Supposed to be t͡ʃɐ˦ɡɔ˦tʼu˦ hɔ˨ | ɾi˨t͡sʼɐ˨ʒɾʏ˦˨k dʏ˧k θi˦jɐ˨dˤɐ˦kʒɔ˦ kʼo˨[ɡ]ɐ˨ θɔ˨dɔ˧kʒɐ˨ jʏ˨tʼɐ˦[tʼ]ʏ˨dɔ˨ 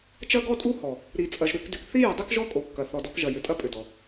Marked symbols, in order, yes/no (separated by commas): no, no